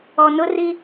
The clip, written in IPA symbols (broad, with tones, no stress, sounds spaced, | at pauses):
ɔ˨ n ʊ˦ r i˦